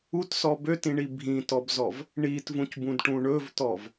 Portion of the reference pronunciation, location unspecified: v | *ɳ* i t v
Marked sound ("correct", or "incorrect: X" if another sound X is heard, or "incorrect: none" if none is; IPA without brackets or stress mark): correct